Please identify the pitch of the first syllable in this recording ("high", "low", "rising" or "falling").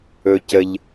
low